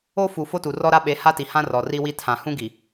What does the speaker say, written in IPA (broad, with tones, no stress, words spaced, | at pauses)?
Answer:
o˦ fu˨ fo˦tu˨rɔ˦ɾa˦ ɓe˨˦ha˦ti˨hã˦ rɔ˨ri˦wi˦ tʰã˨ hũ˦ɡi˨